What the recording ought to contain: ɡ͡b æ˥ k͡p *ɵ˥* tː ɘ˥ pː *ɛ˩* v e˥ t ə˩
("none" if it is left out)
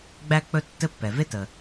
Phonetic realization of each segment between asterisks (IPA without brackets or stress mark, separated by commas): ɵ˥, ɛ˩